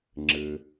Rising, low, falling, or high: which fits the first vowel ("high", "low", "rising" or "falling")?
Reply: low